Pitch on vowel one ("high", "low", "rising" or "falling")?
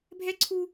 high